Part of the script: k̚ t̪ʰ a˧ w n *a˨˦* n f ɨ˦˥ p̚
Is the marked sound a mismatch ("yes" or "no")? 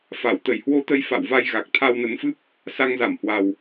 yes